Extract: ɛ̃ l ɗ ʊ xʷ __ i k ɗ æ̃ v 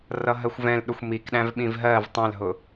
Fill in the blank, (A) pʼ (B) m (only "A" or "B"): B